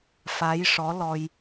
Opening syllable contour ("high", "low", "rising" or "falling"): rising